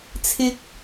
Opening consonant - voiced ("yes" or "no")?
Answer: no